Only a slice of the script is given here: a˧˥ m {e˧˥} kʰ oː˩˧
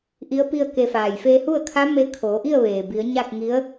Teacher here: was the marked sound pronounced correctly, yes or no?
no